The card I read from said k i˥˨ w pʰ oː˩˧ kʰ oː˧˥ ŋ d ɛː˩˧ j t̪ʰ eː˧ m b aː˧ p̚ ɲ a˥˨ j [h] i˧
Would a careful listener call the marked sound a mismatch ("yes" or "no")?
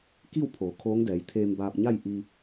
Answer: yes